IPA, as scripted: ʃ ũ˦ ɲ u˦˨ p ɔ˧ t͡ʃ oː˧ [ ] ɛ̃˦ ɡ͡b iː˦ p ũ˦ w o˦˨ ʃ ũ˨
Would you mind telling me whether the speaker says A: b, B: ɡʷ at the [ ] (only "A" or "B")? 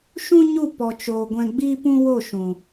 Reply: B